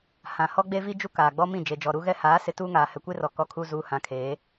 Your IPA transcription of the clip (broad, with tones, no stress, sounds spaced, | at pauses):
h ã˨ h ɔ˦ ɡ͡b e˦ v i˦ d͡ʒ u˦ k aː˨ ɡ͡b ɔ˦ m ĩ˦˨ d͡ʒ e˨ d͡ʒ ɔ˨ ɾ u˦ ɣ ɛ˦ h aː˨˦ s ɪ˨ t uː˦ ŋ aː˨ h ɛ˨ kʷ e˦ r ɔ˨ k ɔ˦ kʰ uː˦ z uː˦ h ã˨˦ kʰ eː˨˦